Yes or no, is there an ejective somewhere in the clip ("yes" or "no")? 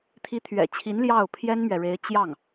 no